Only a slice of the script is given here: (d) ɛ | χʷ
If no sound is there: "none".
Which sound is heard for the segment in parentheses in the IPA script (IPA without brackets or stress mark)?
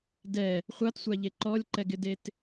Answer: d